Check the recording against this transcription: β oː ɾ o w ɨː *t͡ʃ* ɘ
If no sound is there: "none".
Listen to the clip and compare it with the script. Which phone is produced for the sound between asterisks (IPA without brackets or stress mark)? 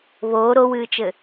t͡ʃ